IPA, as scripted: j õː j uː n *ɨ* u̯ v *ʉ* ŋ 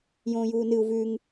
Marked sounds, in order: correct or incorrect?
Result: correct, correct

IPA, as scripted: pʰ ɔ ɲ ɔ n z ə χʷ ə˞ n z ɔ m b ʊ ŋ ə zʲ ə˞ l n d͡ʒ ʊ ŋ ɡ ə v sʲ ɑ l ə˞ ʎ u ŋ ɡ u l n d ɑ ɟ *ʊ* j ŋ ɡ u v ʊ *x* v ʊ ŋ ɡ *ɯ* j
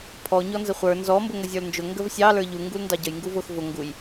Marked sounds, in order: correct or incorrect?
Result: incorrect, correct, incorrect

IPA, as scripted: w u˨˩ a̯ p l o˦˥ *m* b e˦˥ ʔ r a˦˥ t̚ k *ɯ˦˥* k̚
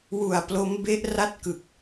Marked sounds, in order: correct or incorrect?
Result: correct, incorrect

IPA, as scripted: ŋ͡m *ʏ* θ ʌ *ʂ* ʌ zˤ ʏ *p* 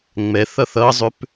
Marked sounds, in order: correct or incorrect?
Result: incorrect, incorrect, correct

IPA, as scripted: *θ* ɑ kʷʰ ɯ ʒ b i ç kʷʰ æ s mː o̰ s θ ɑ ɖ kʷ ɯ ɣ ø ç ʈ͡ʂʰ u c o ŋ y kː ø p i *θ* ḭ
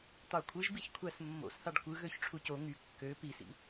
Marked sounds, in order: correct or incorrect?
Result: incorrect, incorrect

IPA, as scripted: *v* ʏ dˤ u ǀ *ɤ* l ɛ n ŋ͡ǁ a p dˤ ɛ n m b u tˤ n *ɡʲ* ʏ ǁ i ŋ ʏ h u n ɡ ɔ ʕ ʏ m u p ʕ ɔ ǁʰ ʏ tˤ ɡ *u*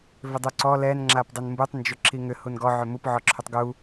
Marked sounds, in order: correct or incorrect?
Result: correct, incorrect, incorrect, correct

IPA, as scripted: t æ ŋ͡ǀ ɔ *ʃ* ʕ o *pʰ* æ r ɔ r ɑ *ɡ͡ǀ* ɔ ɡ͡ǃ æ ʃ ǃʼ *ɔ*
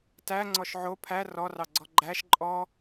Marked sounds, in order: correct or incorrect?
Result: correct, correct, correct, correct

